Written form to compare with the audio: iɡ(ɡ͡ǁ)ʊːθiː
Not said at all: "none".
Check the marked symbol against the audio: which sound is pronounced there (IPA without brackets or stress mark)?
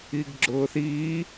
ɡ͡ǁ